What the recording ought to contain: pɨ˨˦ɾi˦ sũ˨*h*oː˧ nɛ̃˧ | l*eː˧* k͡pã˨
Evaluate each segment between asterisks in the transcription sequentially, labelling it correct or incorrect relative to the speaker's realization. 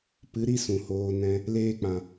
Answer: correct, correct

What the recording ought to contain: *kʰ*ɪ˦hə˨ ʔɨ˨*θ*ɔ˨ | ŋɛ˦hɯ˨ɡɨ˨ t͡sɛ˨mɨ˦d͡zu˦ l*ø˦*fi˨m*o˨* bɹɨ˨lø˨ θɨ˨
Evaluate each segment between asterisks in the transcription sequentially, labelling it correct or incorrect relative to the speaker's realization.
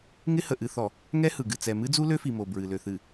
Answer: incorrect: ŋ, correct, correct, correct

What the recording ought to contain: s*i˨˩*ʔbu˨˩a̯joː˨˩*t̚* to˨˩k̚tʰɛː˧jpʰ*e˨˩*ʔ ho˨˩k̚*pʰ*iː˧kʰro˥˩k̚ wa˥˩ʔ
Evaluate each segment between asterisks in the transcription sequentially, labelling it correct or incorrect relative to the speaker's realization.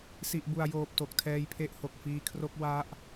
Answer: correct, incorrect: p̚, incorrect: e˦˥, incorrect: f

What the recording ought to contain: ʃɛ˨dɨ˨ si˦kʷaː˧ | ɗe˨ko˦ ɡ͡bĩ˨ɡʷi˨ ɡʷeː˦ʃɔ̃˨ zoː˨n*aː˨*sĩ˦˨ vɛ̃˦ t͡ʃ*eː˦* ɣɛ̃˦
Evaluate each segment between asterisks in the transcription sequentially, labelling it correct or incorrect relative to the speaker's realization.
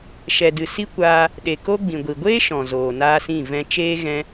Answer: incorrect: aː˦, correct

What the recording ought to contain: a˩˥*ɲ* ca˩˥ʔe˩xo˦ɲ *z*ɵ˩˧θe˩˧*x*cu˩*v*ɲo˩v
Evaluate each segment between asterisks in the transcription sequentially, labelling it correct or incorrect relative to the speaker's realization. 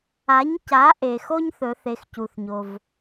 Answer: correct, incorrect: θ, correct, incorrect: θ

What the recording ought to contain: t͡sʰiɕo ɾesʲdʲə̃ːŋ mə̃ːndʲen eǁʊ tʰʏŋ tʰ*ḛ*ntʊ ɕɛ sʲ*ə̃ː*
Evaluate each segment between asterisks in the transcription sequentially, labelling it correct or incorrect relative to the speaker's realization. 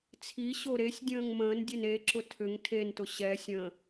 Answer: incorrect: e, incorrect: ə̃

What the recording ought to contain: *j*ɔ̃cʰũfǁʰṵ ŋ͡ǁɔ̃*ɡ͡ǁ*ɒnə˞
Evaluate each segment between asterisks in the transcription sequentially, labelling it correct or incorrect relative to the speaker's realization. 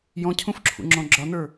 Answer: correct, correct

